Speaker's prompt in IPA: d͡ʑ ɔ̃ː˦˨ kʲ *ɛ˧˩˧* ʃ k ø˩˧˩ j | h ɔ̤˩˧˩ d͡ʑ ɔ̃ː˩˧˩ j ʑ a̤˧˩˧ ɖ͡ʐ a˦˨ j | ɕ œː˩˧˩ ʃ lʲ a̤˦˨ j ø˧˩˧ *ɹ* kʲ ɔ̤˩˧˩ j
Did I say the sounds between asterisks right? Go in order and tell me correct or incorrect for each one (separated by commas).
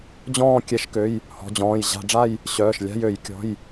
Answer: correct, incorrect